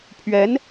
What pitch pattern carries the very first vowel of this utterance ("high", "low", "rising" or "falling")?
rising